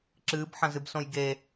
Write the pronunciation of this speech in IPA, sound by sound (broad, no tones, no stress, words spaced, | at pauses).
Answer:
ǁɨːbħɐ̃zɨb sõjɡe